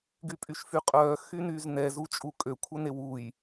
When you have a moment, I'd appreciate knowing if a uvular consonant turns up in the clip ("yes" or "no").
yes